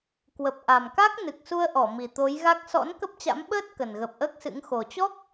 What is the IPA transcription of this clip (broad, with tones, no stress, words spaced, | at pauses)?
kwə˨˩p̚ ʔa˨˩mka˦˥k̚ nɨ˨˩k̚su˧ə̯ʔɔ˧˩ mi˨˩t̪o˨˦jɣa˦˥k̚ sɔ̰˧˥n kə˦˥p̚t͡ɕa̰˧˥m ɓəː˦˥t̚ kə˨˩nɣə˨˩p̚ʔəː˦˥k̚sɨ̰˧˥ŋ xo˨˩t͡ɕɔ˦˥k̚